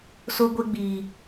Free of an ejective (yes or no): yes